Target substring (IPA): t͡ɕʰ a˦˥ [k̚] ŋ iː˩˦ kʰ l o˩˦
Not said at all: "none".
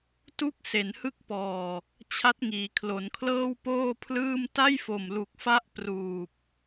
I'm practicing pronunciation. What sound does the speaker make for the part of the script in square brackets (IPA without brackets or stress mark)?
t̚